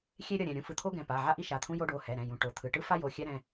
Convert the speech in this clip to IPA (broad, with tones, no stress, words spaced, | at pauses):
xʲe˥ɾʲʌ˩˧˩ɾʲɛ̃˩˧˩ ɾʲũ˥fɯ˩˧˩t̪ʰo˥ɡɛ̃˩˧˩ pa˩˧˩ʕa˥ ʔi˥ʃa˩˧˩t̪ʰũ˥ jo˥ɖo˩˧˩hɛ˩˧˩ɾɛ̃˩˧˩ jũ˩˧˩ʈo˩˧˩t̪ʰɯ˩˧˩ ʈɯ˥fa˥jo˩˧˩ xʲɛ˥ɾɛ̃˩˧˩